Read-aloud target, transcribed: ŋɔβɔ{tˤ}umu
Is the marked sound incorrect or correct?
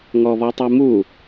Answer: correct